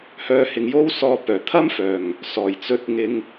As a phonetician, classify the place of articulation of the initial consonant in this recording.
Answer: glottal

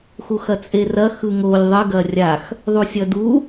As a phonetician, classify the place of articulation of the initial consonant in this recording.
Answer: velar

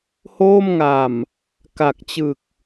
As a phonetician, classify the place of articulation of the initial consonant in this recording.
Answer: glottal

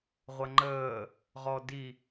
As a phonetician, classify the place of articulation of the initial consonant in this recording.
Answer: uvular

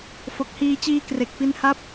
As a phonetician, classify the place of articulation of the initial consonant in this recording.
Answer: labial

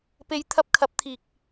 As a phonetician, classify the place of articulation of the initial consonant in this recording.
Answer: labial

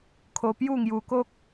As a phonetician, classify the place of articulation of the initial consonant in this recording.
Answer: velar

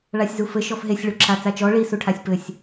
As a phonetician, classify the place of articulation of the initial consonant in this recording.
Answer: retroflex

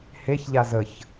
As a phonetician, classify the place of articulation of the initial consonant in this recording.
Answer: glottal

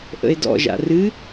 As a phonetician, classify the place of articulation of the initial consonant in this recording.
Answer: glottal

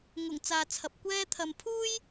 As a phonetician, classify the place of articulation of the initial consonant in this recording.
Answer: velar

